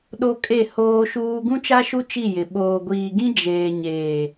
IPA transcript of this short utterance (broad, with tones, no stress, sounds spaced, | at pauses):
ɗ o˦ kʼ e˦˨ h oː˦ ʃ uː˦ ɡ ũ˦ t͡ʃ a˦ ʃ u˦ t͡ʃ i˦˨ j ɪ˨ ɓ oː˨ ɡʷ iː˨ ɡ ĩ˦ d͡ʒ eː˨ ɲ eː˨